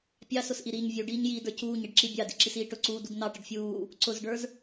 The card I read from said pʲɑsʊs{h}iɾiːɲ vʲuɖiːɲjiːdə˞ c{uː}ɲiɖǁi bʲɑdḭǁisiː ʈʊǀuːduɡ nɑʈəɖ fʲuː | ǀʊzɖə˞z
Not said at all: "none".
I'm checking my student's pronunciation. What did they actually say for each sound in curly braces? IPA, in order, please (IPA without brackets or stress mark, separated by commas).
ʔ, uː